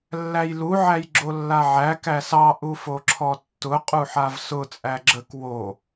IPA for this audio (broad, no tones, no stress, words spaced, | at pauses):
lːæjlu ʕæjɡ͡ǁolːaʕæ kæsɑ ʔufoǁʰɔtːʊ qʼuħavsʊ t͡sʼæɡ͡ǁək wo